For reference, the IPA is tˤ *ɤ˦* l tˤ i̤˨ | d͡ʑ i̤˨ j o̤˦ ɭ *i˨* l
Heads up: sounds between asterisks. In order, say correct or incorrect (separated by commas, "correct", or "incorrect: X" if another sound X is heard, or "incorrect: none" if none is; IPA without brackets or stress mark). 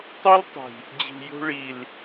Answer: incorrect: o˦, correct